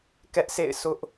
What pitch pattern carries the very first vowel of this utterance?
high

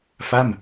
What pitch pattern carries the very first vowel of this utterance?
falling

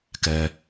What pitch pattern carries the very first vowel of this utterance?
low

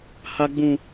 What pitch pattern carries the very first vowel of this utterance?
high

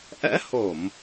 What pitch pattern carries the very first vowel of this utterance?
rising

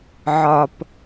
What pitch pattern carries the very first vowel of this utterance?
low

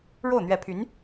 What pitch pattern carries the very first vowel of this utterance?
falling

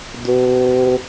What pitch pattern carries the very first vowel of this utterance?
high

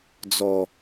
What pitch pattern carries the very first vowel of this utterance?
low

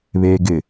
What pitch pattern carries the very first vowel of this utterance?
low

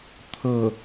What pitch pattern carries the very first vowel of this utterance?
falling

